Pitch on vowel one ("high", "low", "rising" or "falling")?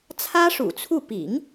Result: high